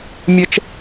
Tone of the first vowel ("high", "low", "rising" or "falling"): high